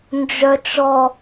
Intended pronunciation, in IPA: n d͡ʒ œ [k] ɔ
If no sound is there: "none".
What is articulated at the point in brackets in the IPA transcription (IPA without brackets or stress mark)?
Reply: t͡ʃ